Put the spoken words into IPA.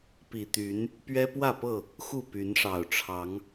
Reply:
p i˨˩ t̪ y˨˦ n | p ɥ ɛ˦ p w ä˥˨ p ɤ˥˨ | x u˥˨ p y˨˦ n ʂ ɑ˨˩ ʊ̯ ʈ͡ʂʰ ɑ˨˦ ŋ

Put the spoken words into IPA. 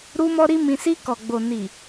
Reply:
ɾ u˧ m ɔ˦ ɾ i˦ m ĩ˧ s i˧ k ɔ˨ ɡ͡b o˨ n i˨

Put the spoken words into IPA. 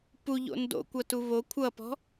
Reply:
p u ʎ o̰ n d o̰ kʷ ʌ t u β o kʷʰ ʌ p ɔ̤

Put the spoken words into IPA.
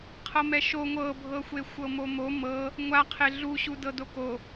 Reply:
qʰ ɤ m ɛ ʃ o ŋʷ ɤ bʱ ɤ xʷ e xʷ ɤ m o m o m ɤ | ŋʷ a qʰ e ɮ u ɕ u d ɤ d o k o

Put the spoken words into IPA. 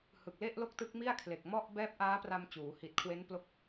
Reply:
h ɯ˨˩ k̚ l e˥˩ ʔ l o˥˩ k̚ t ɯ˦˥ k̚ m i˥˩ a̯ kʰ l e˨˩ k̚ m ɔ˥˩ ʔ b ɛː˦˥ p̚ ʔ aː˦˥ p r a˧ m t͡ɕ uː˩˦ h i˨˩ t̚ kʰ w e˦˥ n p l o˦˥ k̚

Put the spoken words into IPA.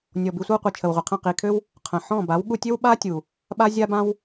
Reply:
nʲ ɔ˨ b i˧ sʷ ə˦ w qʷ i˨ t͡ʃʰ ə˨ w ʁʷ i˨ qʰ ə̃˦˨ q i˨ kʰ ø˦ w | qʰ ə̃˨ ħ ɔ̃˦˨ b a˨˦ w ɠ u˧ tʲ ø˦ w ɓ a˦ tʲ u˨ | ɓ a˦ zʲ a˦ b ã˦ w

